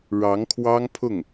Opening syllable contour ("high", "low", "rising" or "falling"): rising